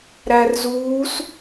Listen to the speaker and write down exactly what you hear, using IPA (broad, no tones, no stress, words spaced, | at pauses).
ɾærzuːs